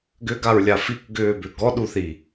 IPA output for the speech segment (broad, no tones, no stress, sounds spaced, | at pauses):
ɡ ʏ ɡ a ɹ lʲ a f i k ɡ ʏː b ʏ ɡ ɔ ɗ u θ i